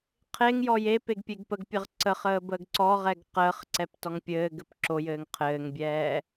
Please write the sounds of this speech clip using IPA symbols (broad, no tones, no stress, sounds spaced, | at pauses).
qʰ e ŋ j ɔ j e p e ɡ pʲ e ɡ p ə ɡ pʲ ə ʁ ǀ ə χ əː b əː ɡ ǀ ɔ ʁ ɛ ɡ q əː χ ǀ ɛ p t ɔ ŋ pʲ ɘː ɡ ɘ p ǁ o j ɘː ŋ qʰ ɘː ŋ bʲ ɛː